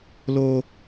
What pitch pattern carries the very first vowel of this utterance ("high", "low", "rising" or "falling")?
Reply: high